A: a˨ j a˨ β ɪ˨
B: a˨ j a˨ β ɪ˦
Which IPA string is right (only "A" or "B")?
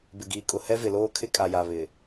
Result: A